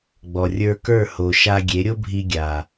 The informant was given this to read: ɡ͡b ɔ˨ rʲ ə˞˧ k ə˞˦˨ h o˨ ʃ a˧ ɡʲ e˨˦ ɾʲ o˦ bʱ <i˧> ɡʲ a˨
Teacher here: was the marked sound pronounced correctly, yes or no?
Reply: yes